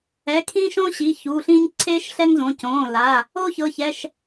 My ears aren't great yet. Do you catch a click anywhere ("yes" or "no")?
yes